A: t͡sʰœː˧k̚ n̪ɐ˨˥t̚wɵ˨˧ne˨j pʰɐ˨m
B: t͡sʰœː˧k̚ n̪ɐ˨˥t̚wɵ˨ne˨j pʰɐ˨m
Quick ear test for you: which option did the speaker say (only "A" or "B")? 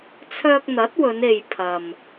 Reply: A